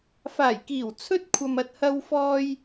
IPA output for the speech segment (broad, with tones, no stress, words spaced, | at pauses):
faː˨˩jkiː˨˩w t͡sʰɵ˥t̚kʷʰɐ˨m ɐ˨t̚hɐ˧wfɔː˧j